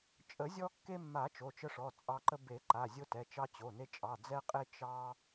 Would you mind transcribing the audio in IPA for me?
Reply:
t͡ʃʼ ə˨˩˦ zʲ ɔ˧ kː e˧ mː a˨˩˦ t͡ʃ o˩˧˩ t͡ʃ ə˧ ʂ ɔ˩˧˩ t͡sʼ ɑ˧ ǃ ə˧ b e˨˩˦ ǃ a˩˧˩ zʲ o˧ t ɛ˩˧˩ t͡ʃ ɑ˧ t͡ɕ o˩˧˩ n e˧ t͡ʃʼ ɑ˩˧˩ d͡z ɛ˧ qʼ e˧ t͡ʃ ɑ˧

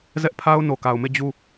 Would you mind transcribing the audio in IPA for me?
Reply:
z ɛ˦ ʔ pʰ a˦ ʊ̯ n o˨ k a˨ ʊ̯ m e˦˨ d͡ʑ u˦˨

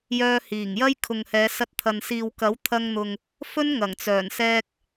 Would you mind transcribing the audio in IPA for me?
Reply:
j œː˧ h iː˨˩ ŋ j ɐ˥ j kʰ ʊ˨ ŋ h ɛː˨˧ s ɐ˧ t̚ t̪ʰ ɐ˨ n s iː˨ w k ɐ˨˥ w t̪ʰ ɐ˧ ŋ n̪ ʊ˨ ŋ | f ɵ˥ n ŋ ɐ˨˩ ŋ t͡s œː˨˩ n s ɛː˧ k̚

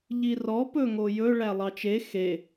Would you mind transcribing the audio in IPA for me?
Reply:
ʎ i r ɔ p ɵ ŋ o j ɵ ɭ æ lˠ ɑ t͡ʃ e x e

